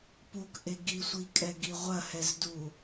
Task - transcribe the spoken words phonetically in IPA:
p u k ʔ e ɡ i sʷ i kʼ ɛ ɡ i ʁʷ ɐ h ɛ z d u

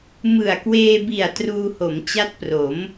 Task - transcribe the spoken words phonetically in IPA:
m ɯ˨˩ a̯ k w eː˧ b i˨˩ a̯ t r uː˧ h o˩˦ m t͡ɕ a˦˥ t̚ p r o˩˦ m

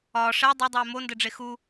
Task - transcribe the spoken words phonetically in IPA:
ɒː ʂ ɛ dˤ ɛ dˤ ɛː m o n d ɘ ɖ͡ʐ e x u

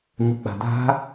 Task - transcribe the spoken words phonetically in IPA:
ɲ u k͡p a̤ d̪ a̤

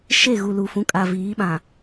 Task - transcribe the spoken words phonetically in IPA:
ʃ e˦˨ ɣ u˨ l u˨ f ũ˨˦ kʼ a˨ v iː˨˦ ɓ ã˨

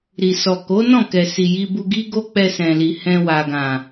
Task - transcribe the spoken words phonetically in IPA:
ɾ i˨ s ɔ˨ k o˨˦ n ɔ̃˦˨ k ɛ˨ s i˨ j i˧ b u˧ ɡ i˦ ɡ o˦ k͡p ɛ˧ s ɛ̃˨ l i˨ h ɛ̃˧ w a˨ ɡ ã˨

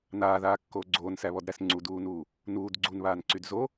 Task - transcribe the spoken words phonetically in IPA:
n aː ð aː kː oː ɡ͡ǀ oː n s æ β ɔ d ɾ æ s ŋ͡ǀ u d uː n uː | n uː d ɡ͡ǀ u n β aː n ǀ y d z o

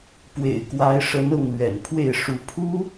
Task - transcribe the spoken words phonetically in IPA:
p w ḛ˨˩ ɪ̯ k w a˧˥ ɪ̯ ʂ ə˧˥ n ɤ˥˩ ŋ l ɥ ɛ̰˨˩ n pʰ w e˥˩ ɪ̯ ʂ u˧˥ pʰ u˥

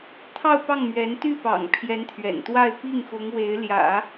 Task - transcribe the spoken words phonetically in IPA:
t̪ʰ ɑ˥˧ ʊ̯ p ɑ˥˩ ŋ m ɥ ɛ˧˥ n t̪ y˥˩ p ɑ̰˨˩ ŋ pʰ j ɛ˧˥ n t̪ʰ ɥ ɛ̰˨˩ n t̪ w a˥˧ ɪ̯ p i˥˩ ŋ x ʊ˧˥ ŋ w e˧˥ ɪ̯ l j ä̰˨˩˦

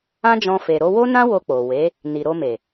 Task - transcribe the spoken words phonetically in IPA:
ã˦ d͡ʒ ɔ̃˧ f e˨ ɾ o˧ w o˦ n ã˦ w o˧ k͡p o˨ w e˨˦ | n i˨ ɾ o˧ m e˨

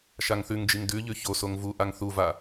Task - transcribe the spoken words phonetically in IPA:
ʃ a ŋ θ ʉ ŋ d͡ʒ i ŋ d ʉ ʎ ʉ ç o s o ŋ v u ʔ a ŋ θ u v a

